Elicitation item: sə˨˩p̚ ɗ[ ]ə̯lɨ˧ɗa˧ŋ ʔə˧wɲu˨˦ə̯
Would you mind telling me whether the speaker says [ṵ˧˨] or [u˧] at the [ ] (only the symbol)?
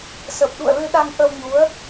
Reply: ṵ˧˨